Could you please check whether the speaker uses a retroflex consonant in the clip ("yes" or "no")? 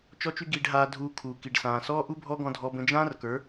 yes